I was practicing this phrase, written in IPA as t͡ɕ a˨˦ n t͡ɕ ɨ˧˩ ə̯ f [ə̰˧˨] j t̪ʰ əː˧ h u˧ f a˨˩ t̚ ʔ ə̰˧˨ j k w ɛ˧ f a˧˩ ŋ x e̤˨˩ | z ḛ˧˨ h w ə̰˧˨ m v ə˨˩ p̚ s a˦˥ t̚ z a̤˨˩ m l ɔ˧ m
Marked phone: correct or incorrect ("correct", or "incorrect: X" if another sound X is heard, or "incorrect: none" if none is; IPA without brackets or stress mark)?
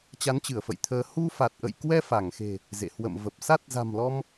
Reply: correct